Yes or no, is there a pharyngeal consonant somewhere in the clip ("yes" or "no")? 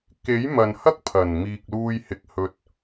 no